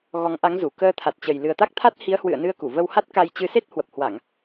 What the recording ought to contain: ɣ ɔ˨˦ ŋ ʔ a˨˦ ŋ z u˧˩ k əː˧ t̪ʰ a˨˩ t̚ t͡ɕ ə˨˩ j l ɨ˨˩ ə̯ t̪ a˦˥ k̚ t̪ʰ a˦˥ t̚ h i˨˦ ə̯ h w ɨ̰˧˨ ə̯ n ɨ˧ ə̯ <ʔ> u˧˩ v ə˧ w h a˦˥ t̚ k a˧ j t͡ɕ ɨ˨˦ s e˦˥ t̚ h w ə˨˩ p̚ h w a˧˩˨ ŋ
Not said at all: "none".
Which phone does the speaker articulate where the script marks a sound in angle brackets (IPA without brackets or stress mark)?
k